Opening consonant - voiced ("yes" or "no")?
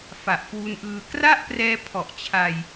no